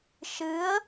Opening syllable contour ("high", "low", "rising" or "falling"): rising